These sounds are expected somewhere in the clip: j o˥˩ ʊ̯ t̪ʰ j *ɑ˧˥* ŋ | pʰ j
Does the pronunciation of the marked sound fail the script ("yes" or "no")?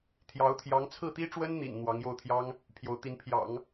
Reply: yes